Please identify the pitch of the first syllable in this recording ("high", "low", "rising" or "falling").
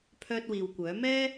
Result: high